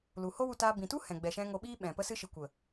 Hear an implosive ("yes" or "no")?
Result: yes